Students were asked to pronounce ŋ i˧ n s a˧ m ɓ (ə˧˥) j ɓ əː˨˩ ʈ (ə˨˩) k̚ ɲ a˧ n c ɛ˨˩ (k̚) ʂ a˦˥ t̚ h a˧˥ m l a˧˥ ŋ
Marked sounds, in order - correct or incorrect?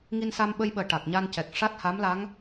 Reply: incorrect, incorrect, correct

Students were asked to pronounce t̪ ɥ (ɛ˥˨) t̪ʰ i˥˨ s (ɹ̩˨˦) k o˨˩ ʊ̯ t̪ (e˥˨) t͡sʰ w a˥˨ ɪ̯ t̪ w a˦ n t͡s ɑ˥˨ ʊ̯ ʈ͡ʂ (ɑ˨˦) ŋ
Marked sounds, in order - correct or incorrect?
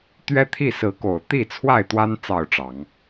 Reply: incorrect, correct, incorrect, correct

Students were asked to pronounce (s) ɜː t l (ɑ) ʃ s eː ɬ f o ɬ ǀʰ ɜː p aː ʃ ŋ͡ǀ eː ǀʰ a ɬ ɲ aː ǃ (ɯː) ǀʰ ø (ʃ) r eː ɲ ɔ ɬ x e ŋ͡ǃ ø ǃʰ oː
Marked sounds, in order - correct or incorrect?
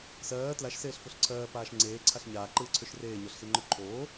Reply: correct, incorrect, correct, correct

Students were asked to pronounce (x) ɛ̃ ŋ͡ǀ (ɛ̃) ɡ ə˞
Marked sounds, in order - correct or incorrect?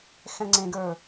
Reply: correct, incorrect

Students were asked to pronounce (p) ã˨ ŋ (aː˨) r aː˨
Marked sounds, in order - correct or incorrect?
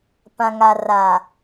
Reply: correct, incorrect

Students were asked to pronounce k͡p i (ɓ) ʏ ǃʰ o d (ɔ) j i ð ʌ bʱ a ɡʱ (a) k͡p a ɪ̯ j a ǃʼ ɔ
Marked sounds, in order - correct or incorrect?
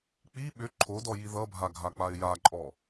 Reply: correct, correct, correct

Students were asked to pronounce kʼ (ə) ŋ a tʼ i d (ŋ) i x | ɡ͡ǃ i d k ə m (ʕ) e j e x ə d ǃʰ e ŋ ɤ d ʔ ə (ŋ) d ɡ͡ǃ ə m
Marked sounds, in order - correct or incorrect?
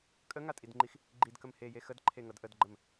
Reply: correct, incorrect, incorrect, incorrect

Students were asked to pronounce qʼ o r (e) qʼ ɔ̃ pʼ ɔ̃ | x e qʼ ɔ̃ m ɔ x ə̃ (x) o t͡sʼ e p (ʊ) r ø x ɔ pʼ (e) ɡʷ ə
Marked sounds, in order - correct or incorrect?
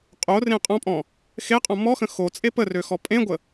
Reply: incorrect, correct, incorrect, incorrect

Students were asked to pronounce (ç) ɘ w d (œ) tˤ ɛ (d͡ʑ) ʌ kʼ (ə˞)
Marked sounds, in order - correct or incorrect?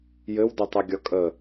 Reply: incorrect, correct, incorrect, incorrect

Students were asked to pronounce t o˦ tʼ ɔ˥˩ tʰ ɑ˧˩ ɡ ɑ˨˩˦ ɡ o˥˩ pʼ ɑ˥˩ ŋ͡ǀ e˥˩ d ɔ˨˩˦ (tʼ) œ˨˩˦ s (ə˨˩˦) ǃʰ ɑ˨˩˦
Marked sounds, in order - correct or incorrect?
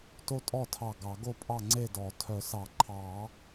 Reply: incorrect, incorrect

